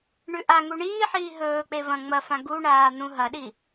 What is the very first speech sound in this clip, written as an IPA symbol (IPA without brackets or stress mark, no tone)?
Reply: ɳ